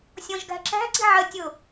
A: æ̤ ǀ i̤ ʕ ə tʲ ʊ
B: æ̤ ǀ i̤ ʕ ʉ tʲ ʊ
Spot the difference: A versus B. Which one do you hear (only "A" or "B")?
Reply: A